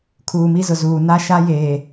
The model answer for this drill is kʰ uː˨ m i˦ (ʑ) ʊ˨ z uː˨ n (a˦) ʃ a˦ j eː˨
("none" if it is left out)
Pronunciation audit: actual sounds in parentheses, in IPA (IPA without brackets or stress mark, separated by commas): z, a˦